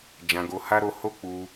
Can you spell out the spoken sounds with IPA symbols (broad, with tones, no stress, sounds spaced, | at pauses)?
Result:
d͡ʒ ã˧ ɡ o˧ h a˦ ɾ o˧ h o˦ k͡p u˧